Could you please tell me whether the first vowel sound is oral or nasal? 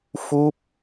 oral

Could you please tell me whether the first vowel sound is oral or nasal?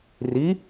oral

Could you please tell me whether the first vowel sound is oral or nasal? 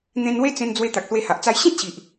nasal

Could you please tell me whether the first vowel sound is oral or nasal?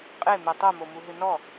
oral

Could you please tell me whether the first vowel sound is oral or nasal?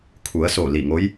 oral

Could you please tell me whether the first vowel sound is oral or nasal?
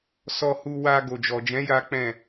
oral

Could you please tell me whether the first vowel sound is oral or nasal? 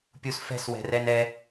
oral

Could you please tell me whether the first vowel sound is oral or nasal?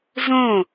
nasal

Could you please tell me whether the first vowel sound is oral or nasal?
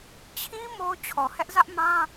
nasal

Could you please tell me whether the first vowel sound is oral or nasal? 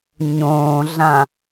nasal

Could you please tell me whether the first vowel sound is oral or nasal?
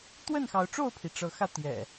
oral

